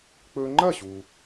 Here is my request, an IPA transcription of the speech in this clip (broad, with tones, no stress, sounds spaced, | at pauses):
k͡p ɵ˧ ŋ͡ǃ ɐ˥˩ ɕ u˩